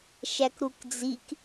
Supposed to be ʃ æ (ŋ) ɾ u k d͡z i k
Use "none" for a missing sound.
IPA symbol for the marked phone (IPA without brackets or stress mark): k